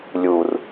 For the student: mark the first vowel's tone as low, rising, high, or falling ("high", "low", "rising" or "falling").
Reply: low